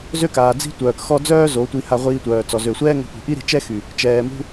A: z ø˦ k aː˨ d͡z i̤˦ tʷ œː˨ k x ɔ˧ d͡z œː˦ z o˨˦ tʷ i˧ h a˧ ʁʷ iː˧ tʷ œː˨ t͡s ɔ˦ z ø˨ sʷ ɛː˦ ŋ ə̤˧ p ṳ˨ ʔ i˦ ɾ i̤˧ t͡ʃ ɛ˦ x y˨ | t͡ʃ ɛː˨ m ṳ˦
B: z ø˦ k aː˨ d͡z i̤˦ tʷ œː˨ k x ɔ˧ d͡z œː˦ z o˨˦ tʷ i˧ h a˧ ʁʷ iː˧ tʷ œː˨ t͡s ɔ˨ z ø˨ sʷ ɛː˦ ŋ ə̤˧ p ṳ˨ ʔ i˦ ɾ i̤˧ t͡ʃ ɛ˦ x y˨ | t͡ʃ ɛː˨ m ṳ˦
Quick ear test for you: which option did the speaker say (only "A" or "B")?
B